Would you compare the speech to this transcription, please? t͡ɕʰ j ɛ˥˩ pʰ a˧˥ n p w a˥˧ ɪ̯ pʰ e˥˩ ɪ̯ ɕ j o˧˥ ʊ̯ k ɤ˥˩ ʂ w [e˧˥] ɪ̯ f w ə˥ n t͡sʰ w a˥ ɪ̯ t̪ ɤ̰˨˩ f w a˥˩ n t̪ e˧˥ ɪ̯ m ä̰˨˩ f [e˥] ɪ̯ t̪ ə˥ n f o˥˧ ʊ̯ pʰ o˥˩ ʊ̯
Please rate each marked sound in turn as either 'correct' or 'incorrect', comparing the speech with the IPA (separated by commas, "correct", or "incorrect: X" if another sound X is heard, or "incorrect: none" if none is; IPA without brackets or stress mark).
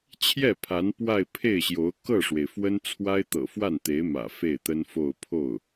incorrect: e˩, incorrect: e˥˩